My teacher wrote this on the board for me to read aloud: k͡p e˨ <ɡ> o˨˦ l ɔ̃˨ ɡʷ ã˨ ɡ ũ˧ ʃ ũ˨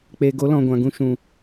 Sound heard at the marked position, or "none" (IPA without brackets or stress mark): ɡ